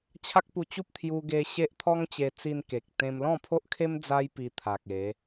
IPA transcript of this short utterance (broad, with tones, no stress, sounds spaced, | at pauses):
t͡ɕʰ a˦ k̚ p u˧ t͡ɕ u˦ p̚ t̪ʰ j u˧ ɡ e˧ ɕ e˦ ʔ t̪ʰ ɔ˦ ŋ t͡ɕ e˧ t͡s i˧ n k e˨ k̚ t̪ ẽ˧ m l ɔ̃˥˧ pʰ o˦ ʔ kʰ e˦ m d͡z a˦ j p i˧ t̪ʰ a˨ k̚ e˨˦